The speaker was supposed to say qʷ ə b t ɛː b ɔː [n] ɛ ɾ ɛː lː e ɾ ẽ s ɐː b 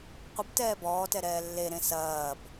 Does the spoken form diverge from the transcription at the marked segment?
yes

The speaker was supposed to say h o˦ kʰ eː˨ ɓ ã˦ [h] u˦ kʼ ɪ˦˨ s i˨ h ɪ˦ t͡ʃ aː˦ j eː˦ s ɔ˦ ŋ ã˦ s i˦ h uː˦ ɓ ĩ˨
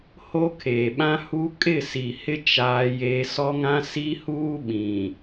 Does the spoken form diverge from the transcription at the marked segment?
no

